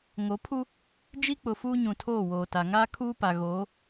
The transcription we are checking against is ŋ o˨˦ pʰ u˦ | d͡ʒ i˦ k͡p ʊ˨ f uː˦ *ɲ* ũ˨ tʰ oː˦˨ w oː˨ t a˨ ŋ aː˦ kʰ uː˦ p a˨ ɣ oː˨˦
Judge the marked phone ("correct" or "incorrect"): correct